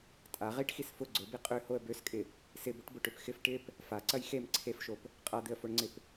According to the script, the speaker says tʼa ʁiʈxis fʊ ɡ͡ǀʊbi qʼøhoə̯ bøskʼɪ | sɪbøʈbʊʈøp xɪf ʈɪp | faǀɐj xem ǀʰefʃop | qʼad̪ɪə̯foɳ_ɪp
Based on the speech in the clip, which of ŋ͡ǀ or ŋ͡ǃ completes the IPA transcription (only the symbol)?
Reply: ŋ͡ǀ